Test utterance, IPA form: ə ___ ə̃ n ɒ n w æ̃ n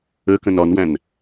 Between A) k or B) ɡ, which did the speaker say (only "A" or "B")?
A